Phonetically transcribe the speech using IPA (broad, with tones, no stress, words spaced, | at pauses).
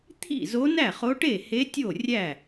t̪ʰḭ˥˩zo˧˥ næ˥˩χo˧˥ʈe˥˩he˧˥ tʲo˥˩rʲæ˥˩